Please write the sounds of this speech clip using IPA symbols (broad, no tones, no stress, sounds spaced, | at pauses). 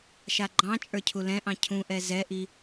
ʃ a ɡ͡ǃ ɑ̃ t͡ʃʼ ə˞ cʰ u l ɛ̃ ʔ ɑ̃ cʰ ũ ʔ ɛ z ɛ ʔ i